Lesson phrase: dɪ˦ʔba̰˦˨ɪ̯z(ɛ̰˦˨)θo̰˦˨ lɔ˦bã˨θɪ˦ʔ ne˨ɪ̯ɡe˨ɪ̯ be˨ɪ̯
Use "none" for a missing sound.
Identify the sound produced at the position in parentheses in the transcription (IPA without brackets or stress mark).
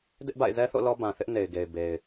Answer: ɛ˦